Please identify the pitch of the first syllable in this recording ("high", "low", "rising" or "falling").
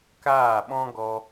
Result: falling